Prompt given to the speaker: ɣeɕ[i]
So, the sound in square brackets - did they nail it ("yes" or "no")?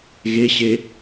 no